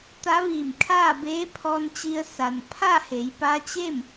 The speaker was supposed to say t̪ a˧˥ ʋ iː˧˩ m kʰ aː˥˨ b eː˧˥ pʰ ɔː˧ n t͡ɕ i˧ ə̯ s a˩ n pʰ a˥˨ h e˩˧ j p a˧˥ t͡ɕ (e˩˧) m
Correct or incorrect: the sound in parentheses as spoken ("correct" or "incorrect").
incorrect